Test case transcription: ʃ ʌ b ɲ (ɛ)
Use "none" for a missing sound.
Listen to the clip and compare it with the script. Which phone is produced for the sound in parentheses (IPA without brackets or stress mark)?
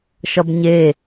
e